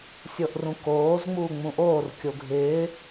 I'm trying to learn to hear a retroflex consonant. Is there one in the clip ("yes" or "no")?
no